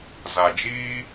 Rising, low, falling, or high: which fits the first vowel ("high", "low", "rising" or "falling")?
low